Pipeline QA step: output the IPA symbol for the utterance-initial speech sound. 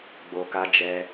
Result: ɡ͡b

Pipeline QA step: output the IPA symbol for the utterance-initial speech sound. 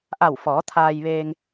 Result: ʔ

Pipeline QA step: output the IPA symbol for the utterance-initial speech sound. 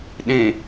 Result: ɗ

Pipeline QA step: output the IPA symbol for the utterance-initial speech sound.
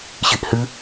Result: ɕ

